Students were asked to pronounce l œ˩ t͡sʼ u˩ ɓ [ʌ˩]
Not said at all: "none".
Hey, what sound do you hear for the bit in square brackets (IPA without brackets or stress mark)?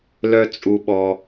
ɔ˩